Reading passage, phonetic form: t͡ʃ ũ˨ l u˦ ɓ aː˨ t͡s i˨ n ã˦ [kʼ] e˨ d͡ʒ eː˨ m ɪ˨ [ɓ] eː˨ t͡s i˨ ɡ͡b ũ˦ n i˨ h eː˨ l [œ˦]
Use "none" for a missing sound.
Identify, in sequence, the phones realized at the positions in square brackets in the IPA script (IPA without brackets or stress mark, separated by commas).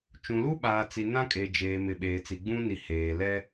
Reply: kʼ, ɓ, ɛ˦